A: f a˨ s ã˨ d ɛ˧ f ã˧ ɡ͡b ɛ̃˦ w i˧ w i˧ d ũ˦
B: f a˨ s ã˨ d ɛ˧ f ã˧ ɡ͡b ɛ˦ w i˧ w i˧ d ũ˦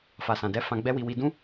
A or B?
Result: B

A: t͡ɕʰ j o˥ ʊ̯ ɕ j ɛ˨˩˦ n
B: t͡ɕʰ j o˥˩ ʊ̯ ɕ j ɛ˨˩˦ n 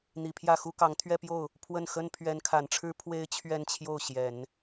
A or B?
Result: B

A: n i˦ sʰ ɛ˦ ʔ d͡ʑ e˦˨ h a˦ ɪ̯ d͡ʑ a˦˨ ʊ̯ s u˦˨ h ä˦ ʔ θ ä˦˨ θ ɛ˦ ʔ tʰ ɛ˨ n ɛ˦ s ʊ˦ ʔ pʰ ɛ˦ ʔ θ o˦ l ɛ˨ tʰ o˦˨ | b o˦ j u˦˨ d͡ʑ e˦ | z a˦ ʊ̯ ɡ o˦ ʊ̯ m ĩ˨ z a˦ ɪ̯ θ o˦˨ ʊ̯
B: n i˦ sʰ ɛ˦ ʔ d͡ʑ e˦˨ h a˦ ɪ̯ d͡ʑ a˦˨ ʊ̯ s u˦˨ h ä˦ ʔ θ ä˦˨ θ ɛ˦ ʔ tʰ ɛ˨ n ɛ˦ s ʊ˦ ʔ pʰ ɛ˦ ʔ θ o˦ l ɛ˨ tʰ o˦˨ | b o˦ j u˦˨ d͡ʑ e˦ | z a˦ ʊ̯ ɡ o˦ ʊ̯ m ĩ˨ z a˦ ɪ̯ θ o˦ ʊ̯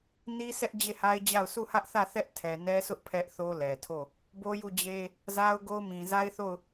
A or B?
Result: A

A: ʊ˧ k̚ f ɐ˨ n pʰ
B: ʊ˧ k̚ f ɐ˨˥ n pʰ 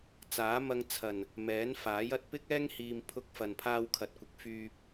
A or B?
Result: A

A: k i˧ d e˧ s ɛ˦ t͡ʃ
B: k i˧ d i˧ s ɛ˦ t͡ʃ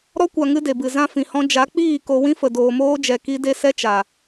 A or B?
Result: A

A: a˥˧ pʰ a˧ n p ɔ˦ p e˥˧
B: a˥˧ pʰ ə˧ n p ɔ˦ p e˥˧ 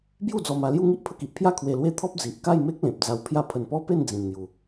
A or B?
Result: B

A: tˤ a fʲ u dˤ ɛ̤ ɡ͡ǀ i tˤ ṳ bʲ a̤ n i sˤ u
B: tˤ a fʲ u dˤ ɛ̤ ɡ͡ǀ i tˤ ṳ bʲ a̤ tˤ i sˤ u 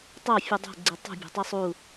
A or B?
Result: B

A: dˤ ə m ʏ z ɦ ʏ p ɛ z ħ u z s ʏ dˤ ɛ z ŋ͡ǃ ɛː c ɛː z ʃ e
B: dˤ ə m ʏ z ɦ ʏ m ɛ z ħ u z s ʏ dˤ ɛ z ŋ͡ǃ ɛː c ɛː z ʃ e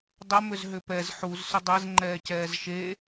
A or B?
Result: A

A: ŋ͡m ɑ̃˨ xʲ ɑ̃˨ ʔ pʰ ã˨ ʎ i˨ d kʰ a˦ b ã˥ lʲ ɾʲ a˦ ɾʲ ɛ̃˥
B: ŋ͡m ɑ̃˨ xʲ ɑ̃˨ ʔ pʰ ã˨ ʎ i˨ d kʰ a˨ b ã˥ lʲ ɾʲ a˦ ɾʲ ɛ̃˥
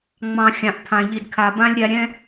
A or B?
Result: B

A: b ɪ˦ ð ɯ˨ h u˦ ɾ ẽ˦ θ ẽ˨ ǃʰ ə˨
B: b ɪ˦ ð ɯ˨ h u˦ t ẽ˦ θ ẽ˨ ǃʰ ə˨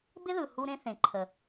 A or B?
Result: A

